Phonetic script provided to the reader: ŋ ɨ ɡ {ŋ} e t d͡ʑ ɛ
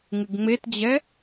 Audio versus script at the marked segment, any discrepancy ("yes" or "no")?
yes